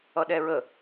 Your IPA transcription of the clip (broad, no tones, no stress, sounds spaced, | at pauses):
ʌ ɗ ɛ ɹ ə